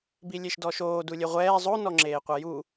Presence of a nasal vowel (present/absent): absent